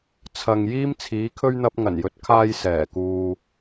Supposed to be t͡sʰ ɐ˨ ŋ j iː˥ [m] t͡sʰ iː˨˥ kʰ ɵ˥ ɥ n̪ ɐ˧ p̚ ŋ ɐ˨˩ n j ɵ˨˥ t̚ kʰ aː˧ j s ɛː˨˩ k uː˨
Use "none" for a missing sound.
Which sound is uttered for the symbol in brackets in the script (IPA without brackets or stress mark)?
m